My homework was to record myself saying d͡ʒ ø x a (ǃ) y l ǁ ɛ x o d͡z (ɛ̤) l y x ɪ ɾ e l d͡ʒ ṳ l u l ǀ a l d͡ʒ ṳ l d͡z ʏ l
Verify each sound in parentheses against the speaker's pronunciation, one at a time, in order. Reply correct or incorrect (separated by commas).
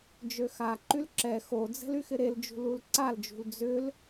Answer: correct, correct